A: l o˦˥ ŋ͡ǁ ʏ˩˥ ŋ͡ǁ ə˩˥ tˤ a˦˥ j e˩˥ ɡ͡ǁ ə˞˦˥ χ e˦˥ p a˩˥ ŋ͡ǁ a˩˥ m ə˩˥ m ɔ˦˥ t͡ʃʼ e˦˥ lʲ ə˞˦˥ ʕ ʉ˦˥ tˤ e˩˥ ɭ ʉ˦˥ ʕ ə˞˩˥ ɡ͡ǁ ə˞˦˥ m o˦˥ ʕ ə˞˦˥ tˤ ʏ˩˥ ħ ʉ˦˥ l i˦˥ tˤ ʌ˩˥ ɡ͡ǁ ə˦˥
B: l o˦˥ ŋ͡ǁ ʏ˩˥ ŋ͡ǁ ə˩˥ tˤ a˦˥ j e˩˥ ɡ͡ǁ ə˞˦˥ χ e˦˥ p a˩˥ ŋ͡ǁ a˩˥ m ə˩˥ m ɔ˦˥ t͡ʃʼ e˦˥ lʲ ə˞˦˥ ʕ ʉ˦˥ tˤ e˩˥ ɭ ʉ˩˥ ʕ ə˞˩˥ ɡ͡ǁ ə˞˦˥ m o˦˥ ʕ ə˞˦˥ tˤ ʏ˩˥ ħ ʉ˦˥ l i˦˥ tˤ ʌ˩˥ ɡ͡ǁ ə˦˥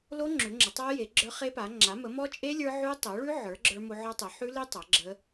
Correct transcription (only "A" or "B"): A